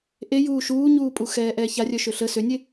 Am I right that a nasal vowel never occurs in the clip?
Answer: yes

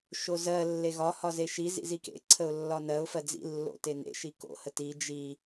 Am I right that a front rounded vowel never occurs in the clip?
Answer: yes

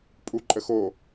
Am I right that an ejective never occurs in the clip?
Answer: no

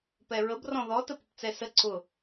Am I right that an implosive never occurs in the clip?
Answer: yes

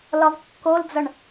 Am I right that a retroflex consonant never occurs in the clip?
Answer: no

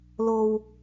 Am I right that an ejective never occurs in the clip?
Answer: yes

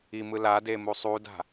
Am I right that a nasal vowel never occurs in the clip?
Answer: yes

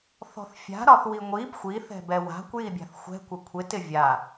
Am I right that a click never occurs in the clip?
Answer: yes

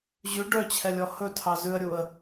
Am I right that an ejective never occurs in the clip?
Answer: yes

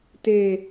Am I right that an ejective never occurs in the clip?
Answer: yes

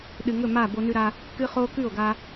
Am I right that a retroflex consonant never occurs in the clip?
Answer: yes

